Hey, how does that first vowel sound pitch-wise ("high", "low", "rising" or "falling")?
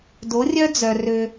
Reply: rising